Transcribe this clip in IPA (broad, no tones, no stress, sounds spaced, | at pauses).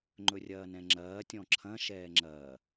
ŋ͡ǃ ɵ rʲ ɐː n ɛ̃ ŋ͡ǁ ɐː tʲ ɔ̃ ǁʰ ɐ̃ ʃ ɛː ŋ͡ǁ ɐː